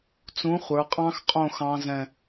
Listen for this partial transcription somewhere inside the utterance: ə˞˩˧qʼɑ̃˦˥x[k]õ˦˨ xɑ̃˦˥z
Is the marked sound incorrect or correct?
incorrect